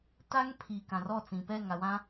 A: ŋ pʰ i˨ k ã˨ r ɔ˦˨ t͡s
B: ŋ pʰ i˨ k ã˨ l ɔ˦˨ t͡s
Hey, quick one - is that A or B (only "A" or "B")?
A